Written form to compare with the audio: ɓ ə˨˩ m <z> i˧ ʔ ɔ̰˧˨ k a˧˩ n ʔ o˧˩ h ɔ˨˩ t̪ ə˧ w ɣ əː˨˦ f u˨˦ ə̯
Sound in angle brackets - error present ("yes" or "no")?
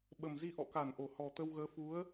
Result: no